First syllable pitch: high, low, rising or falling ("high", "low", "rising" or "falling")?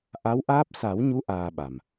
rising